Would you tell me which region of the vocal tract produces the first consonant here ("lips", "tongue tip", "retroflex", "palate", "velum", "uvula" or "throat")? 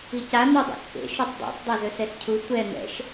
palate